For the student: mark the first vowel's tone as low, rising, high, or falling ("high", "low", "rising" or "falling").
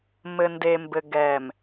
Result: low